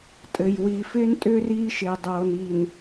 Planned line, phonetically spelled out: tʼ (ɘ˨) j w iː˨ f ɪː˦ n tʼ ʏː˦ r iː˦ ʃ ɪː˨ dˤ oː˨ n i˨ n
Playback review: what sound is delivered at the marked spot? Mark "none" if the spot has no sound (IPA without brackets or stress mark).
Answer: ɘ˨